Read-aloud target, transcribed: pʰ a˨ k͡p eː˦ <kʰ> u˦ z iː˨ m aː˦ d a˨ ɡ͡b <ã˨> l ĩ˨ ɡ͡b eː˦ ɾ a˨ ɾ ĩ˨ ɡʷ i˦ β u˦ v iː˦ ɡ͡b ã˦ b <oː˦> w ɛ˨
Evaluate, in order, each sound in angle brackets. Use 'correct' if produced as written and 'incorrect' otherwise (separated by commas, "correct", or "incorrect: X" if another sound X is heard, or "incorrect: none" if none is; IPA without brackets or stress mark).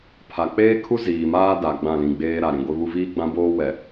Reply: correct, incorrect: ã˦˨, correct